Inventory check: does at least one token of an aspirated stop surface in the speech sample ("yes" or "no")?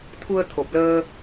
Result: yes